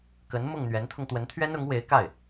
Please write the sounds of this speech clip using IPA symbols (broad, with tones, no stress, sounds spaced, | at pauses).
k ə˧˥ n m ʊ˥˩ ŋ n̪ ɥ ɛ˧˥ n t̪ʰ ʊ˧ ŋ t̪ w ə˧˥ n t̪ʰ ɥ ɛ˥ n ʊ˧˥ ŋ w e˧˥ ɪ̯ k a˥˩ ɪ̯